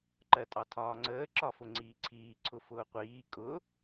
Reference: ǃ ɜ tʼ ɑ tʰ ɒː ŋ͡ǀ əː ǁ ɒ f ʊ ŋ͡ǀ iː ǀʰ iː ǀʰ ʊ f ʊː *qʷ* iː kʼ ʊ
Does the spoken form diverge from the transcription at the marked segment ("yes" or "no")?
no